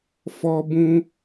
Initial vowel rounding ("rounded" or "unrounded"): rounded